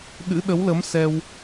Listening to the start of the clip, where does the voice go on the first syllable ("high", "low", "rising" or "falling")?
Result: rising